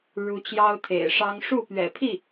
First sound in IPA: ɻ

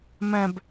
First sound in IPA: m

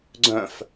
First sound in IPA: ɡ͡ǀ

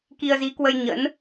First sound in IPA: k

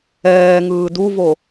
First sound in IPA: ɛː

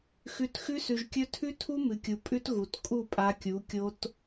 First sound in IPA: x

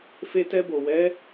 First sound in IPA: f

